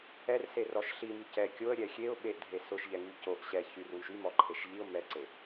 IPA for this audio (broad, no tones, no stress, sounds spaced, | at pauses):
ɛ r s e r ɔ ʃ ɬ i m y c ɛ kʲ o ə̯ ɾʲ ɛ xʲ e ʊ̯ ɓ e ʔ dʱ e s ʊ ʃ ʎ ɛ ŋ y c o ʔ ɕ ɛ ç y r w y ʃ y m ɔ ǃʰ e ʃ ʎ i ʊ̯ m ɛ ǀ e